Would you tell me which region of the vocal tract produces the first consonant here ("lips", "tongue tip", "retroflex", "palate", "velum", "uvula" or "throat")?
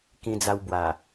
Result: velum